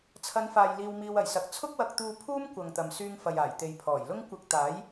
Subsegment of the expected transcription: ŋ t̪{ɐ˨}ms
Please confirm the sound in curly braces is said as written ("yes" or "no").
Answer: yes